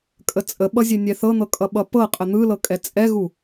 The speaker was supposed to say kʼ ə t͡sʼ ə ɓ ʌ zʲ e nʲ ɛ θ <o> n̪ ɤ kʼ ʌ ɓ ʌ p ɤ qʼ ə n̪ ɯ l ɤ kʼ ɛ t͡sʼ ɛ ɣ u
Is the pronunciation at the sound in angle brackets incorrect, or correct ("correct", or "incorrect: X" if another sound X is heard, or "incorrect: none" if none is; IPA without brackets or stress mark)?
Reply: incorrect: ɤ